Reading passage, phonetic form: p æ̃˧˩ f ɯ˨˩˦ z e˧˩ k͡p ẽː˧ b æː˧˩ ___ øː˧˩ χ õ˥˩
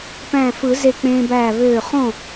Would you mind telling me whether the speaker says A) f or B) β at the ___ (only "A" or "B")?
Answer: B